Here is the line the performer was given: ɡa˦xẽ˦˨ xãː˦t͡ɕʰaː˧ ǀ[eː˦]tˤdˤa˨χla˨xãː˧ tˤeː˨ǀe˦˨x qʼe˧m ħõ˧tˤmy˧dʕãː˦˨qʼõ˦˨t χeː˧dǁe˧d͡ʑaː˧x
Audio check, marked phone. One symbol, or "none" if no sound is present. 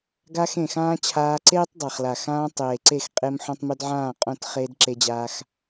eː˦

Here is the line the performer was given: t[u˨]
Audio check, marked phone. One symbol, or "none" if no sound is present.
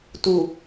u˨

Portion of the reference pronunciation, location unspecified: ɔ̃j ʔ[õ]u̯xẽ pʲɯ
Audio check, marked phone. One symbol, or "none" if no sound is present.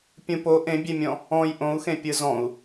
õ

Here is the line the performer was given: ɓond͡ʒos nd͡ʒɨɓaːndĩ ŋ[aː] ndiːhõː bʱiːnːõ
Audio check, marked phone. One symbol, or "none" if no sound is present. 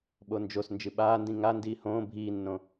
a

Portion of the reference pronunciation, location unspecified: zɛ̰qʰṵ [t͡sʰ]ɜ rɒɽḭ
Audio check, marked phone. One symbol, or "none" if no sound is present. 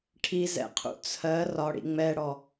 t͡sʰ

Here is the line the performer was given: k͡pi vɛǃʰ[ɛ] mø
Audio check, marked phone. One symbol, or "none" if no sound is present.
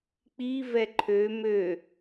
ø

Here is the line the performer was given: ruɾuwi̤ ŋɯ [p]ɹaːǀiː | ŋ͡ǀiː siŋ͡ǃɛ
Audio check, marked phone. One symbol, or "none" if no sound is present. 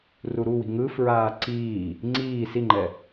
f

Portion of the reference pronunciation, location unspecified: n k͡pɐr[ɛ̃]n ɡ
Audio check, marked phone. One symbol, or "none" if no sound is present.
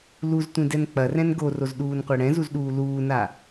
ɛ̃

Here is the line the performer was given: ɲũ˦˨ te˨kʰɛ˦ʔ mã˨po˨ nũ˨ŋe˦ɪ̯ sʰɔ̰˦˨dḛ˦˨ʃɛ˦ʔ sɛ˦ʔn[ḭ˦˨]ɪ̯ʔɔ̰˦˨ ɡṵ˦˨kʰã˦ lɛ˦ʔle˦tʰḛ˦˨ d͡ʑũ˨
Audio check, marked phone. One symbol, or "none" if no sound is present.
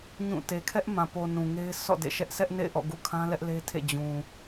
ḛ˦˨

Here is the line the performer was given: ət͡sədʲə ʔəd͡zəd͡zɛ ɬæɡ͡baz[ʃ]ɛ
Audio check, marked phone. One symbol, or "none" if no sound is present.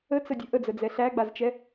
t͡ʃ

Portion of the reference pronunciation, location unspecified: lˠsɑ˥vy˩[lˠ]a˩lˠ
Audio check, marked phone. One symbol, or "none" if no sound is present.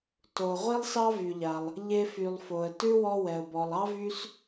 ʎ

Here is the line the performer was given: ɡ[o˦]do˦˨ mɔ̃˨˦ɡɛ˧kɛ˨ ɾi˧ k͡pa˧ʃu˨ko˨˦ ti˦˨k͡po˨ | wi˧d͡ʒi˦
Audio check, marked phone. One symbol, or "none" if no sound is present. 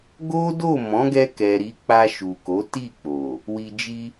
o˦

